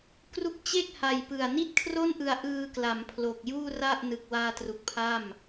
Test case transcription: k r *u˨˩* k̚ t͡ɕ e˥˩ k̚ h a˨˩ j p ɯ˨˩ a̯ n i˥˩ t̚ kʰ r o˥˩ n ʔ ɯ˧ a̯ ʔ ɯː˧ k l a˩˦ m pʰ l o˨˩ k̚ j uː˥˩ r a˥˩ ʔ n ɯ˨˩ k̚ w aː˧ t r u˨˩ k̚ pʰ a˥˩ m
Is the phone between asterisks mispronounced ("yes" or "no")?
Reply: yes